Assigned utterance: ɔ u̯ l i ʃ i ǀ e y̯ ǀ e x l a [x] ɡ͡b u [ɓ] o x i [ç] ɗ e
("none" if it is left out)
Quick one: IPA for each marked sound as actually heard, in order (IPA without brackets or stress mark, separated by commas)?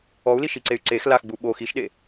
x, ɓ, ʃ